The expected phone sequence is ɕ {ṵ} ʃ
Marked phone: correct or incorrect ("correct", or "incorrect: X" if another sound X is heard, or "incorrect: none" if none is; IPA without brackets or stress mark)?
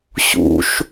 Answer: correct